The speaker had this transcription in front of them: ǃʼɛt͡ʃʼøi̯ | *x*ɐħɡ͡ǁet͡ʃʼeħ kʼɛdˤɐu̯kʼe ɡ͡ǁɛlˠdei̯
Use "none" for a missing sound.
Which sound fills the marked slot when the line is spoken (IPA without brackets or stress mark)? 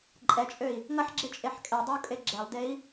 ŋ